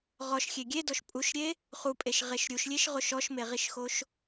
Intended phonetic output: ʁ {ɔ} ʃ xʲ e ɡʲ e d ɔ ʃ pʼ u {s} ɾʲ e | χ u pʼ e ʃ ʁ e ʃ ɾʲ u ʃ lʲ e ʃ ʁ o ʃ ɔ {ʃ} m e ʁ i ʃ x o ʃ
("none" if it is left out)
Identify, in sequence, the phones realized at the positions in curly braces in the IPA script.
ɔ, ʃ, ʃ

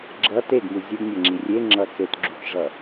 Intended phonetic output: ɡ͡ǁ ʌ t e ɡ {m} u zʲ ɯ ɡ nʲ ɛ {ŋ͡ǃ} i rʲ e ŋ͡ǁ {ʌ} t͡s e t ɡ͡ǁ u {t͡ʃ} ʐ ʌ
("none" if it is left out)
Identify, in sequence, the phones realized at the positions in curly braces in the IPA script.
m, ŋ͡ǁ, ʌ, t͡ʃ

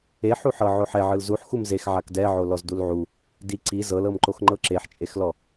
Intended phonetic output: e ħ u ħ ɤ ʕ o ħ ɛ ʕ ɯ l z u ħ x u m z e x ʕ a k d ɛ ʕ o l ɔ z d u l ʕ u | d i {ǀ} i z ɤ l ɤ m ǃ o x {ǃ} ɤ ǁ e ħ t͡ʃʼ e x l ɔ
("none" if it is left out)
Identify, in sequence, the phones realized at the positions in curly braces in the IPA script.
ǀ, ŋ͡ǃ

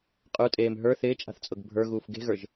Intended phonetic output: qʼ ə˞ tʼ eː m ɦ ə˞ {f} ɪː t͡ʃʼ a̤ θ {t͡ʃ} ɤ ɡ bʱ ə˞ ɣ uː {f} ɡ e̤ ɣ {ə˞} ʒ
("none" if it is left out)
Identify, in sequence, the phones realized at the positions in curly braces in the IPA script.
θ, t͡sʼ, f, ə˞

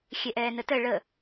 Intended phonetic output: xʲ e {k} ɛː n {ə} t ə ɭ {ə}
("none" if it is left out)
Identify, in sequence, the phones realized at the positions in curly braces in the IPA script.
ʔ, ə, ə

